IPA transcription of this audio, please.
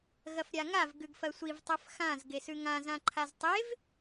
ɣ ɐ f ɾʲ a ŋ a v ɡ ʉ ɡ f ɐ sʷ i v tˤ ɵ f x ã z ɡ e s ʉ ŋ ã z ã ǃʰ a z tˤ e v

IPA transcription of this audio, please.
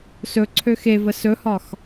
s ɵ ǀʰ ø x e v ə s ɵ h ɒ x

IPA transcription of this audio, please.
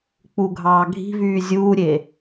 k͡p u ɡʱ ɑː ɡʱ i̤ v yː zʲ uː ɾʲ e

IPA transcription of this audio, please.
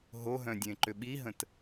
ɦ o ɦ œ̃ dʲ ẽ ǃ ʏ ɓ i ɦ ə̃ t

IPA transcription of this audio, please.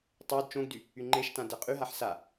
tˤ o d t͡ʃ õ ɡ d y | y ŋ͡ǃ e ʃ t ã d ɛ qʼ y ɦ a ħ s a

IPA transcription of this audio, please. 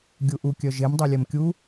ɡʲ u ʔ u kʲ œ ʒ e m dˤ ø lʲ ɛ m kʲ u

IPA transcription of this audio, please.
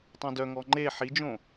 tˤ œ̃ d œ ŋ ɔ ŋ͡ǃ e ħ i d͡ʒ õ

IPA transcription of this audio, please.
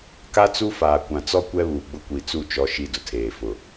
k a˦ t͡s u˦ f aː˨ kʷ ã˨ t͡s ɔ˦ kʷ ɛ˦ β uː˨ ɡ͡b ʊ˦ kʷ i˨ t͡s u˦˨ t͡ʃ ɔ˦ ʃ i˦ d ʊ˨ tʰ eː˨ f ʊ˨

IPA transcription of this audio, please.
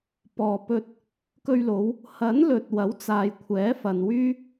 p ɔː˨ p ɵ˧ t̚ | k ɵ˧ ɥ l o˨˧ w | h ɐ˨˥ n l ɵ˨ t̚ w ɐ˨˥ w t͡s aː˨ j kʷʰ ɛː˨˥ f ɐ˨ n w yː˥

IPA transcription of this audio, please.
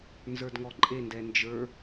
n z ə˞ d ŋ ɔ ǃʼ e n d ɛ n d͡ʒ ə˞

